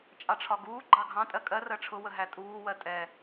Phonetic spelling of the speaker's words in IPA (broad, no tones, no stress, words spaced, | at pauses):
t͡ʃʼɑʈ͡ʂʰɒɡuː ɡ͡ǃɑɡʱɑ̃ tʼɜkʼɜ rɜʈ͡ʂʰʊ wəɦætʼuː wɜtʼɛ